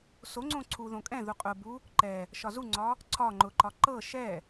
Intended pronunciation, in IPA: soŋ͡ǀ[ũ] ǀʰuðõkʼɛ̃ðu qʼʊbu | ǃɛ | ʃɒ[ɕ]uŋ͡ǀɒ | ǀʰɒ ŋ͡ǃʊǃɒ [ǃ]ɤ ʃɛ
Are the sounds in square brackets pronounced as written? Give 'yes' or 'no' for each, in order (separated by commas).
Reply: no, no, yes